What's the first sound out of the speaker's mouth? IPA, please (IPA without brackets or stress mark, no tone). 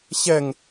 ɕ